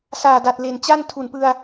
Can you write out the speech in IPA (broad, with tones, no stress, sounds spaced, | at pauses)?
s aː˨˩ d a˨˩ t̚ l e˨˩ n t͡ɕ a˥˩ n tʰ u˨˩ n p ɯ˧ a̯